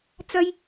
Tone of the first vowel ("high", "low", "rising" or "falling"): high